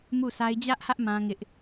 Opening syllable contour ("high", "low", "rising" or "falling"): falling